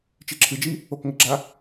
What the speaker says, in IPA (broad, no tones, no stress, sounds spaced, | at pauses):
t͡ʃ e ǁʰ ɨ d͡ʒ i | o k ŋ ɘ ɡ͡ǁ a